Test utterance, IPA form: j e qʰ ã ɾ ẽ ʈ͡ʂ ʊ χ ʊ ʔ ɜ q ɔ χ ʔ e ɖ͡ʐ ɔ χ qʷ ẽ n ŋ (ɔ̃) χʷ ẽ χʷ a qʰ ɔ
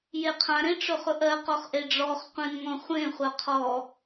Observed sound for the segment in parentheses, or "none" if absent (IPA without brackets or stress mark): ɔ̃